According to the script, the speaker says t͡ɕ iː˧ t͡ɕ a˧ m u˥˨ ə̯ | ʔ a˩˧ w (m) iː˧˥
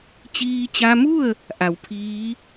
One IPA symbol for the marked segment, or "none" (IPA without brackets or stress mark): pʰ